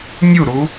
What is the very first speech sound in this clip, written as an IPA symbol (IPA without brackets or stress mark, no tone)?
nʲ